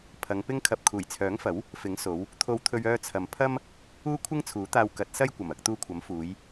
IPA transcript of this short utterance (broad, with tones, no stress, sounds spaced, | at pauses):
pʰ ɐ˨˧ ŋ p ɪ˥ ŋ kʰ ɐ˧ p̚ kʰ uː˨˩ j t͡sʰ œː˨˥ ŋ f ɐ˨˥ w | f ɪ˨˥ ŋ s o˨˧ w | t̪ʰ o˧ w t̪ʰ ɵ˧ ɥ œː˧ t͡sʰ ɐ˨ m pʰ ɐ˥ m | uː˥ kʷʰ ɪ˥ ŋ t͡sʰ uː˨˥ t̪ aː˧ w k ɐ˨˥ t̚ s ɐ˥ j kʷ ɐ˨˩ m ɐ˧ k̚ t̪ uː˧ kʷʰ ɐ˨˥ m f uː˨˧ j